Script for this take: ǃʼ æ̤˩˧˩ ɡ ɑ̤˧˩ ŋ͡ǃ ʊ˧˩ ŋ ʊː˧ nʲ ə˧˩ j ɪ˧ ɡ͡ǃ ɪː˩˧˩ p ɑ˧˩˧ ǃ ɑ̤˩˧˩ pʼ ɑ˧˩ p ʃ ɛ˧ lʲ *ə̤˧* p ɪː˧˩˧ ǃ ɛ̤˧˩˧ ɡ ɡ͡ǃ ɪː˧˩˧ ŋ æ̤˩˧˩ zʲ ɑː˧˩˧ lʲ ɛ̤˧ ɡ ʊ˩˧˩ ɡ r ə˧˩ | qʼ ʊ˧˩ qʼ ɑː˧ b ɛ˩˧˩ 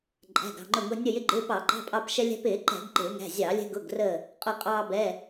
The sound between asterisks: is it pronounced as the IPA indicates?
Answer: no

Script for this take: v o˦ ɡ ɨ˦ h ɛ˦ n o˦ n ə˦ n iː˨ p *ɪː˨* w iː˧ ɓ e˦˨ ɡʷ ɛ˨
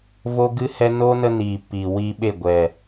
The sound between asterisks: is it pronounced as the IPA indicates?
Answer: no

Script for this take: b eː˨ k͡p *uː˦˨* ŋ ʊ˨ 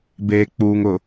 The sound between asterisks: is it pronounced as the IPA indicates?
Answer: no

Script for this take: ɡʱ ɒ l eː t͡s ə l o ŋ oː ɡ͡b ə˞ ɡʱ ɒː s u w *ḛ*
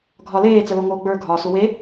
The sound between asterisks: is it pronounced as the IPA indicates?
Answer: no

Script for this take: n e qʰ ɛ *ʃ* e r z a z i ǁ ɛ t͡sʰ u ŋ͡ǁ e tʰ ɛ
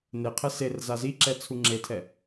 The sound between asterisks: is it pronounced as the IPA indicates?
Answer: no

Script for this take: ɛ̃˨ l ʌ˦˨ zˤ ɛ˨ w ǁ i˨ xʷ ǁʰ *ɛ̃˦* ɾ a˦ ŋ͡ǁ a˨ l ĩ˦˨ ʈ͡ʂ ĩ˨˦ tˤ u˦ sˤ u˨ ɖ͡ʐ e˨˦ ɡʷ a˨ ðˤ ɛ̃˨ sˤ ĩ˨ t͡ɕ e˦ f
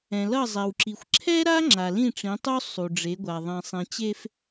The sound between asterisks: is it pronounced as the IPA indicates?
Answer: no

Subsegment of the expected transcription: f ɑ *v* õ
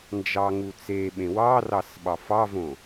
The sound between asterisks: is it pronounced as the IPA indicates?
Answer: yes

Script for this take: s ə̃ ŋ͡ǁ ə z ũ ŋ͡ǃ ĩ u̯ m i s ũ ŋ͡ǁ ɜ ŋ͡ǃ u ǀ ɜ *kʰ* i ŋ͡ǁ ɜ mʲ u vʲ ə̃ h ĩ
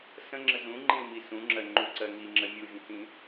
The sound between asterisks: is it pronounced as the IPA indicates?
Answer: no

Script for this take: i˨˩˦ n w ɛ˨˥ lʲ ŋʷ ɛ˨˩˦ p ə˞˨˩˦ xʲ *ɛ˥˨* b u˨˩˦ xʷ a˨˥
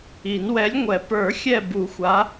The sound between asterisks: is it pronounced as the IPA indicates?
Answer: no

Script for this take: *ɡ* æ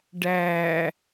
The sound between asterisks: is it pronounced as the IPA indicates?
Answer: no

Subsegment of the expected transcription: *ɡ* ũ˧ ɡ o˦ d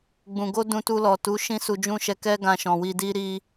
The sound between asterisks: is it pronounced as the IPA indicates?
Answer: no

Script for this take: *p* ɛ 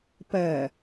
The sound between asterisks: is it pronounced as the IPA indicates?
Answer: yes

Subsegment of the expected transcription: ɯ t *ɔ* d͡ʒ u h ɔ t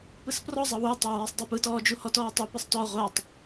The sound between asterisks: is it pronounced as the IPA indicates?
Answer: no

